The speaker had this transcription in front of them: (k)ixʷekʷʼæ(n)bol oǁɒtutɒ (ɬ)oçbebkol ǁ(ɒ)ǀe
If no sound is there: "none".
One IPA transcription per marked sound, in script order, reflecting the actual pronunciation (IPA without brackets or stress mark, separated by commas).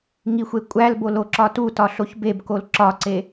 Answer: ŋ, l, ɬ, ɒ